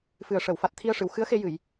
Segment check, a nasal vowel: absent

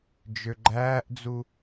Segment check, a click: present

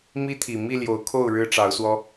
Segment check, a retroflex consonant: present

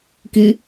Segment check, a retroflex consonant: absent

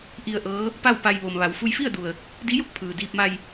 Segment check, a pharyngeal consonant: absent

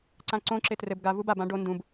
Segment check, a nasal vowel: present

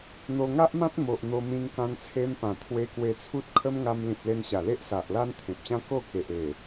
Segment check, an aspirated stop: present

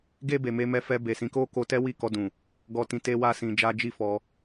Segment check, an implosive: absent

